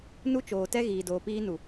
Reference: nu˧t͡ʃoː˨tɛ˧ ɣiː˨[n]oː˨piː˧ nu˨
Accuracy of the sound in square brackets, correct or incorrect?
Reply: incorrect